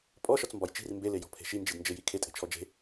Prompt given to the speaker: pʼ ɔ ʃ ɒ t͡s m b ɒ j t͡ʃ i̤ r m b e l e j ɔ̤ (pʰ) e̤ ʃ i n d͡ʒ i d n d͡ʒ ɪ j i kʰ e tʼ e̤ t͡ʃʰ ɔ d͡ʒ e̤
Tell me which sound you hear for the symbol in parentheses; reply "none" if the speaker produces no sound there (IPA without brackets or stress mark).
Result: pʰ